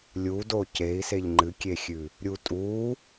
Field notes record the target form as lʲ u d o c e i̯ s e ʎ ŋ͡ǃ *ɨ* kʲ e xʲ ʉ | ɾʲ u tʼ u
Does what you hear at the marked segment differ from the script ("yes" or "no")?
no